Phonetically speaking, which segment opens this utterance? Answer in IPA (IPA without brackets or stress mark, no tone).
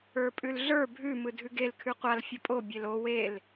ə˞